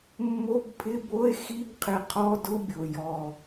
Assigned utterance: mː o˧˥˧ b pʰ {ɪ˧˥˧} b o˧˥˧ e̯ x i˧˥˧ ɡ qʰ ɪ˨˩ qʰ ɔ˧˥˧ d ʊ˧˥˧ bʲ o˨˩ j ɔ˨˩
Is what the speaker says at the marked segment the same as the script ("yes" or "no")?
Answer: yes